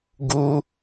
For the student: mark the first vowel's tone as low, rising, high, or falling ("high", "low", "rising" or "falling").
high